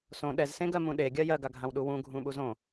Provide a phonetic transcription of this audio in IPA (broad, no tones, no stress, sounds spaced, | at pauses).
s õ ɗ ɛ z s ẽ ɡ ɜ m ũ ɗ e ɡʲ ɜ j ɜ ɡ a ɡʱ ã w ɗ u w ũ ɡʱ ũ ɓ u z õ